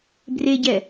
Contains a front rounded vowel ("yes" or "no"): no